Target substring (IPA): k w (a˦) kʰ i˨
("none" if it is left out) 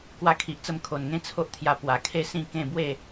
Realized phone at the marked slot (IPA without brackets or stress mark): a˧